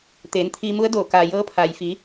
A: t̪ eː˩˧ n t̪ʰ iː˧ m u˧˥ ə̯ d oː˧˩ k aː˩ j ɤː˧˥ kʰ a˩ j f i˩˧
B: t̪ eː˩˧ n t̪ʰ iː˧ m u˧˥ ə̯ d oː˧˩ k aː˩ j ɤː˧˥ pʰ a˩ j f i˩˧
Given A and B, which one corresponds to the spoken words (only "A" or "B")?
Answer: B